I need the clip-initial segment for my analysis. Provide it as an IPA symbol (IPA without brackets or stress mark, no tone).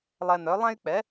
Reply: lˠ